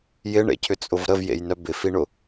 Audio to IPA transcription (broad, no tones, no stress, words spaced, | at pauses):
jɪɳḛcʰʏt͡sʼʊv ɾəvjḛjnœ bɪfiɳʊ